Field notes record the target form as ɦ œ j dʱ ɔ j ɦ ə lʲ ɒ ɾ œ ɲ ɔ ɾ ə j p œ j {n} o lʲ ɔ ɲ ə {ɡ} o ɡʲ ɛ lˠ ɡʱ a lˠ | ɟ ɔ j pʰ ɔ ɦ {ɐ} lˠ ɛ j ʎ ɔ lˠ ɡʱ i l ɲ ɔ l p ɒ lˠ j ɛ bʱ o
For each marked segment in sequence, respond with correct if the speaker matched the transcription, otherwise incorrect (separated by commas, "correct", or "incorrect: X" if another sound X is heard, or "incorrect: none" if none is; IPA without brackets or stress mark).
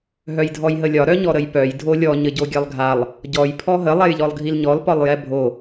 incorrect: dʱ, incorrect: ɟ, incorrect: ə